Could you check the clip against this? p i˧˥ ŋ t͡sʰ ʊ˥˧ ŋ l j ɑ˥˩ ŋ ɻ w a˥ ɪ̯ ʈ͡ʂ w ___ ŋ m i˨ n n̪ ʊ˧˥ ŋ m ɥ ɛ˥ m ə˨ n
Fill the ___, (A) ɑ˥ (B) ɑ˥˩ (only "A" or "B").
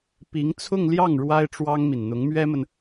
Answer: A